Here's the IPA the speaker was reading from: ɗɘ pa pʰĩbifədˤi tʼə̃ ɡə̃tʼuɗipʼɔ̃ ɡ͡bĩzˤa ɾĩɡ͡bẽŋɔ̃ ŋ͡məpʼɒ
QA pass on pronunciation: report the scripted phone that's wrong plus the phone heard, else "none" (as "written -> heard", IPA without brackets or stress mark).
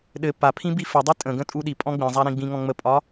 ẽ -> ĩ